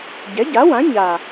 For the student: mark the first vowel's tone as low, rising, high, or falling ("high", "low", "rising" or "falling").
rising